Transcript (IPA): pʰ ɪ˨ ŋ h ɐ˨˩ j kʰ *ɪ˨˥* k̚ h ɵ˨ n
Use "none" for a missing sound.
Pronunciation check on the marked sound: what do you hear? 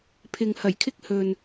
ɪ˥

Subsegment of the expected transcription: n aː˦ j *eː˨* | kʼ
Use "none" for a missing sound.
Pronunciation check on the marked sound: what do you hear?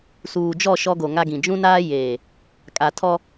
eː˨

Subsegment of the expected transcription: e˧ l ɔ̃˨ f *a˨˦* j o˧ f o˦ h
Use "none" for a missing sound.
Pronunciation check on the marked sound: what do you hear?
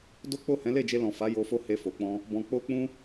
a˨˦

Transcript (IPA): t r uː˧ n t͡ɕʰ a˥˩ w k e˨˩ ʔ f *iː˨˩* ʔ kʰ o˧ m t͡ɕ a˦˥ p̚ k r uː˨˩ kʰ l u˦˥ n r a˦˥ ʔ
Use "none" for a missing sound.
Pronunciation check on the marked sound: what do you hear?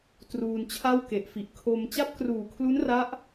i˨˩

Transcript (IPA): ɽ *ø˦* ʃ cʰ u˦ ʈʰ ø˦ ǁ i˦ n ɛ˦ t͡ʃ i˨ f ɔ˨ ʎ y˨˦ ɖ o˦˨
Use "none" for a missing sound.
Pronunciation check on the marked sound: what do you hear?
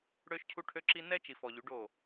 ø˦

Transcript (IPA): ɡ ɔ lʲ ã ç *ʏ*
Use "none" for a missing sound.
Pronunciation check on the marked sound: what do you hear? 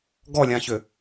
ʏ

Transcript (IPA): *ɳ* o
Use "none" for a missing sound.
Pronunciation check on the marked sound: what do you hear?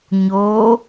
ɲ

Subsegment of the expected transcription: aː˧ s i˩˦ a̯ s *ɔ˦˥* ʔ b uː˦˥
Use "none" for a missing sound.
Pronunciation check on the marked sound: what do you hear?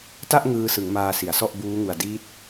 ɔ˥˩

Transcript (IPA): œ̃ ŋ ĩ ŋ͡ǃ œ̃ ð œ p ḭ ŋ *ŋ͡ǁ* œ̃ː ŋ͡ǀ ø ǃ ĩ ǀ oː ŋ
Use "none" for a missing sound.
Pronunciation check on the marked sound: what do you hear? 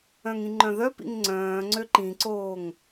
ŋ͡ǀ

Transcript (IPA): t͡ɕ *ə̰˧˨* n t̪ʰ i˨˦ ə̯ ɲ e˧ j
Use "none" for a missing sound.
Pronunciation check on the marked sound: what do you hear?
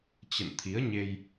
ə̰˧˨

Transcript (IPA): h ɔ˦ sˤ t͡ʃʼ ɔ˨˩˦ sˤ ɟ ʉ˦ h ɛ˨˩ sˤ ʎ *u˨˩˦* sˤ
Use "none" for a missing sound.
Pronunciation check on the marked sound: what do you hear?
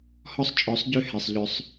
ʏ˨˩˦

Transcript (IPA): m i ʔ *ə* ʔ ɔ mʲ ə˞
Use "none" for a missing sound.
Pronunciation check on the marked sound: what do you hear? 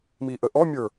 ə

